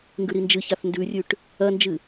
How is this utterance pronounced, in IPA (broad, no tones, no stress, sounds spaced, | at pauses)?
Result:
ŋ ɡ ʉ ɾ i n d͡ʒ ɨ ç a θ n d ʉ rʲ ʉ ʈ | ɐ n d͡ʒ ɨ